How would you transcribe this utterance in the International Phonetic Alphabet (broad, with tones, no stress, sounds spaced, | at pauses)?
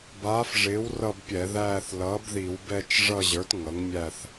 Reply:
b aː˩˥ f ʐ ɪː˩˥ w r ʌ˦˨ b pʲ ɛ˧˩˧ ð æː˦˨ θ l ʌː˩˥ b ð i˧˩˧ w b ɛ˦˨ t͡ʃ ʐ ʌ˦˨ ʑ ə˞˩˥ t ŋ ʌ˩˥ ŋ mʲ æ˦˨ θ